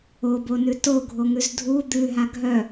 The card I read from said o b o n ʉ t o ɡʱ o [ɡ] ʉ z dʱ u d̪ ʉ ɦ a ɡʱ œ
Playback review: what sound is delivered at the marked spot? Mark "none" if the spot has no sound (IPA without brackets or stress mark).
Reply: ŋ